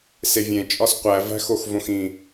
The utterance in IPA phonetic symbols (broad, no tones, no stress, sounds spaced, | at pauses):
s e vʲ ẽ t͡ʃʼ ɒ s qʷ æ v æ̤ x o x v õ x ĩ